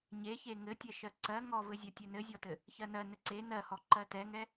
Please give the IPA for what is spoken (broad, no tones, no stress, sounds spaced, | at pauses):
ɲ e ç e ŋ ɘ tʲ ɛ ʃ ɜ ǀ ɜ ŋ ɔ v ɘ zʲ ɜ tʲ ɛ n ɘ zʲ ɔ t ɘ | ç ɜ n ɜ n ɘ ǀ e n ɜ h ɔ ǃ ɜ t ɛ ŋ ɛ